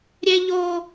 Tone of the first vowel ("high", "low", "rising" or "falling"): high